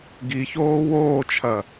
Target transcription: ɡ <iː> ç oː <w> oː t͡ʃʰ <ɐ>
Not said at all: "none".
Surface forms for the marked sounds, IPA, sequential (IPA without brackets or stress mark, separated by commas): i, w, ɐ